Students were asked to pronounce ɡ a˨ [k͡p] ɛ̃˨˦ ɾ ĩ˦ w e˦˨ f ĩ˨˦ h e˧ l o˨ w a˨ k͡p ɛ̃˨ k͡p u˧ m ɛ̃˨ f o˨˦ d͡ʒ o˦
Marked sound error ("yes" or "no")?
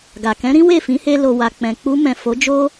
yes